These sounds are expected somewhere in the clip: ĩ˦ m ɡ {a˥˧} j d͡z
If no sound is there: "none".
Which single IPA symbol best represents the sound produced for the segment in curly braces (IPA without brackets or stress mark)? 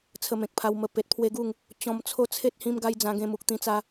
a˦